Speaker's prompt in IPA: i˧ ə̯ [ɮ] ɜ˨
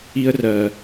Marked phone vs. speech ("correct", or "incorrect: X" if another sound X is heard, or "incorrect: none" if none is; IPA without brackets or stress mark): incorrect: r